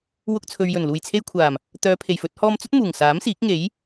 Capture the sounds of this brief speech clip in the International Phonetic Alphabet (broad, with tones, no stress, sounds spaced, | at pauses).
w ʊ˧ k̚ t͡sʰ ɵ˨ ɥ j ɵ˨˩ n l uː˨˩ j t͡sʰ e˧ j kʷʰ aː˨˩ m | t̪ œː˨˧ pʰ e˨˩ j f ɵ˧ t̚ h ɔː˧ m t͡s ɵ˥ t̚ m uː˨˩ ŋ s aː˨˥ m s iː˨˥ k̚ ŋ e˨˥ j